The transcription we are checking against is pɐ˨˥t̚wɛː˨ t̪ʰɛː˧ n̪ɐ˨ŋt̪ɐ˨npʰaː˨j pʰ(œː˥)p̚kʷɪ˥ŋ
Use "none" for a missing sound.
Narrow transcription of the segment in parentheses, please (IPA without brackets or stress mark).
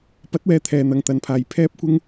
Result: ɛː˥